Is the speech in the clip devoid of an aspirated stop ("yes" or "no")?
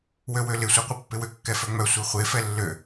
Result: yes